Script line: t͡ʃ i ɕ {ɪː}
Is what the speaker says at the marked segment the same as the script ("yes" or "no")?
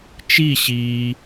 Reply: no